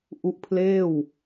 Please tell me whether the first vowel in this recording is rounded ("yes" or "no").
yes